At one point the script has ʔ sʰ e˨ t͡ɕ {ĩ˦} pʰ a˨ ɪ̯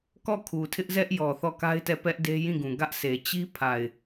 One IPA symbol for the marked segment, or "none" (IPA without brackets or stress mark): i˦